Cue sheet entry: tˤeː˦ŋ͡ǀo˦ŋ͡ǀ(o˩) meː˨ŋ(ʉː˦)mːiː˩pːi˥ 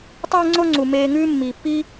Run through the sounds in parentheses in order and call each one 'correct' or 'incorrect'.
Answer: incorrect: u˩, correct

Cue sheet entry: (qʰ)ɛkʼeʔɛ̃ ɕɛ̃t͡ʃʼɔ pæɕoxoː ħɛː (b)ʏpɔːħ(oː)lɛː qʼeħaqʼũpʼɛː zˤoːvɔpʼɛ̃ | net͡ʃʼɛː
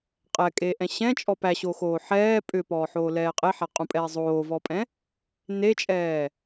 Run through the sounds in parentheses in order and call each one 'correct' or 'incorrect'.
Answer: incorrect: qʼ, incorrect: pʼ, correct

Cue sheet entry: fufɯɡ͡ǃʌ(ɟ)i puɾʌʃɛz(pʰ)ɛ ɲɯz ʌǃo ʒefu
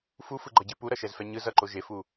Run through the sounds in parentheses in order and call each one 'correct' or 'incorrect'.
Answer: correct, incorrect: f

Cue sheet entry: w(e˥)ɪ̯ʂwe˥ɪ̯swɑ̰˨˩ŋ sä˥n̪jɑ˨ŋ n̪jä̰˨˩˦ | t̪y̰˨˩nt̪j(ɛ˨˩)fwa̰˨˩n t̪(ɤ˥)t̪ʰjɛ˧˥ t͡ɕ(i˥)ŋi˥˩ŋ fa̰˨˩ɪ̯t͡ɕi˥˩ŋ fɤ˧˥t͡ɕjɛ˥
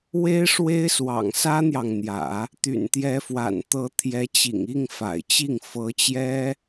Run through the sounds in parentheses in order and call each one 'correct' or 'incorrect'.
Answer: correct, incorrect: ɛ˧˥, incorrect: ɤ˧˥, incorrect: ḭ˨˩

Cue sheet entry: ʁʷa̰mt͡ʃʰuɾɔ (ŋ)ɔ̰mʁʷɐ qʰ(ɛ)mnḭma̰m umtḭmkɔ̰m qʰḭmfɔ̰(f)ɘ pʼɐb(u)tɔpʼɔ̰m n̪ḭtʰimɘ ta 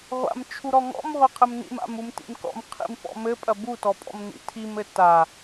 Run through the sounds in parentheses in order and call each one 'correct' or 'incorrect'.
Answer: correct, incorrect: ɘ, incorrect: m, correct

